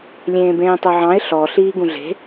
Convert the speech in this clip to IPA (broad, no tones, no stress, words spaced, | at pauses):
lʲẽːbẽːtˤœʕɑ̃ɪ̯ ɬɔ ɬiːɡũɮe̤